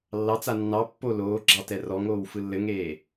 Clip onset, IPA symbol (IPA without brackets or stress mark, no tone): lː